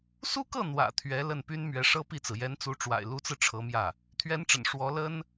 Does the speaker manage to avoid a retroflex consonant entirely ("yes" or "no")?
no